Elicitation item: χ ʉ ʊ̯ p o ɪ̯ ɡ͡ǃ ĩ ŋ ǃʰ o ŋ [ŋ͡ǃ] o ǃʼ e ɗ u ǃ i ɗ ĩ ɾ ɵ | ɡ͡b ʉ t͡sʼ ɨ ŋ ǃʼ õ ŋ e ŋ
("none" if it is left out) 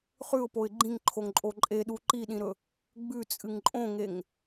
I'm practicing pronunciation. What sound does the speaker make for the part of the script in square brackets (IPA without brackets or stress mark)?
ǃʼ